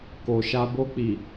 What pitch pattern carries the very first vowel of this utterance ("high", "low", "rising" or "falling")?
low